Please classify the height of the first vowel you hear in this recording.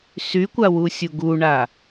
high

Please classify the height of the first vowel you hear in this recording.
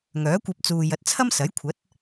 mid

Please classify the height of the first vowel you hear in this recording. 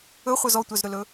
mid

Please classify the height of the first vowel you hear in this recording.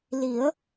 high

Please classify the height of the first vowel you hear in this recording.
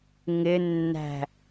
high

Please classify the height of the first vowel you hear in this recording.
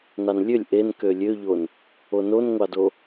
low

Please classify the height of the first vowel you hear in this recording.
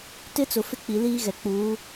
high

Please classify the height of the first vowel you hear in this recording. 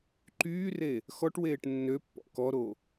high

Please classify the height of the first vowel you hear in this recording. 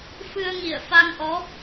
high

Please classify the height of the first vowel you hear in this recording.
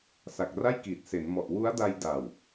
low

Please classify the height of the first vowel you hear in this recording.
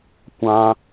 low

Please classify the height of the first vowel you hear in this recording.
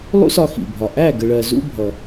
high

